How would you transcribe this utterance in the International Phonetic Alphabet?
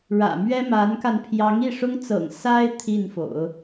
ɻ ä̰˨˩ m ɥ ɛ˥ m a˧˥ n k a˧ n pʰ j ɑ˧˥ ŋ i˥˩ ʂ ʊ˥ ŋ t͡s ɤ̰˨˩ ŋ s a˥ ɪ̯ t̪ʰ i˥˩ n f o̰˨˩˦ ʊ̯

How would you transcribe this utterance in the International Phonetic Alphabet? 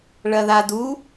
ɭ ɐ ð a d u

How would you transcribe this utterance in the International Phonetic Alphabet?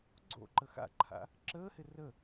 ɡ͡ǀ o̰ ǃ ə x a̰ ǃʰ a̰ | ǁ əː h ɪ r ə

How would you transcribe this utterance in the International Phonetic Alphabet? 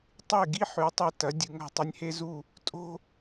tˤ e˥˩ ɡ i˥ ħ ʉ˩˥ tˤ e˧ t ɐ˩˥ dʲ ɨ˩˥ ŋ a̤˥˩ tˤ ɐ˥ nʲ h e˥ z u˥˩ | tʼ o̤˥

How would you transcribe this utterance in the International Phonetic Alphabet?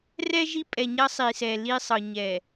r ɛ˦ ʒ i˦ pʼ ɛ˨ ɲ ɐ˦ sˤ i˨ s ɛ˨ l i˦ sˤ ɤ˨ ɲ ɛ˨

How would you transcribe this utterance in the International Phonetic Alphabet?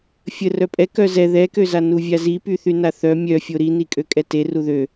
fʲ ə r œ pʼ ɛ k œ z ɛ ð ɛ k ø z a n u vʲ a z i p y θ y n a θ œ mʲ œ fʲ o ɾ i n i kʼ ø kʼ ɛ t e r u ð ø

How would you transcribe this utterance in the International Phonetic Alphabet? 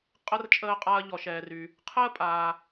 qʼ ə˥ r t͡ʃʼ əː˧ qʼ a˧ ɐ̯ ʎ ɔ˩ ʃ ɛː˩ r y˩ | qʰ əː˥ pʼ aː˩

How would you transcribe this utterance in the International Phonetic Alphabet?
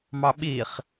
m ɑ ɓ i χ

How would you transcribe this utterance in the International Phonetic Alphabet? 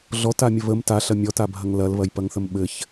ɮ ɔ t a mʲ ə β ə m t a ɬ ɐ mʲ ɔ t a bʱ ɐ ŋ l ɐ l β ɐ j p ɐ ŋ θ ə m ɓ ɘ ç

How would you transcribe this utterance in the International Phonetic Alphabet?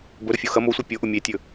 b ɵ ɾ ʊ fʲ o x ɐ m o sʷ i pʲ o ʔ ʊ mʲ e tʲ ɵ

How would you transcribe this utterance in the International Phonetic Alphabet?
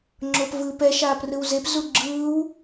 ŋ͡ǁ o p v ɯː p ɛ ʃ aː p r ɯ w z e p z u ɡ͡ǁ ɯː w

